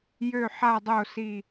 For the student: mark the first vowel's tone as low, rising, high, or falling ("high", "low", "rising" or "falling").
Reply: low